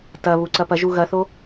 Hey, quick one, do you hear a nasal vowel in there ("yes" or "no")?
no